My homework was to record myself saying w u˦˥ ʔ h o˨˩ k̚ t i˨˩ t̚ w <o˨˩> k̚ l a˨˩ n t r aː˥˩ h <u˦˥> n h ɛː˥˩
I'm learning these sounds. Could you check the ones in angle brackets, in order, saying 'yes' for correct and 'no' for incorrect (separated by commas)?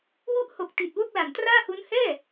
no, yes